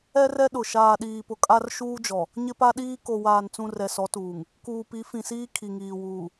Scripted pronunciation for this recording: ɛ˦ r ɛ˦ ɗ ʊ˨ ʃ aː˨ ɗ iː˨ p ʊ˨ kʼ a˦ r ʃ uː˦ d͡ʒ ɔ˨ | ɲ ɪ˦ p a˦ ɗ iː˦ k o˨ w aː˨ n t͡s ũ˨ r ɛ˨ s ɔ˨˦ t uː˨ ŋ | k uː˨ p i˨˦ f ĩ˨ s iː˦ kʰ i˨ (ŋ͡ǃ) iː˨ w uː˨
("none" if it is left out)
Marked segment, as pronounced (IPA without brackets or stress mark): ŋ